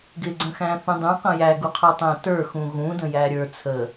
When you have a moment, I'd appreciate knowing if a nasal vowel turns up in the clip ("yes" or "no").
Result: yes